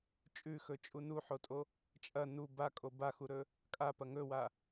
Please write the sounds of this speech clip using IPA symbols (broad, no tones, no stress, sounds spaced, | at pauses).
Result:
t͡ʃʼ ʉ x ɵ t͡ʃʼ u n u ħ o tʼ o | t͡ʃʼ ɐ n u b a kʼ o b a x u ɾ ɵ | kʼ a p ɐ ŋ ɵ w a